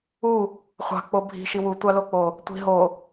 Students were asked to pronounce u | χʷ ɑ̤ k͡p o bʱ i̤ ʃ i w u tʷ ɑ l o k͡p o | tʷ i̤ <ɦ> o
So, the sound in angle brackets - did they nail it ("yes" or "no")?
yes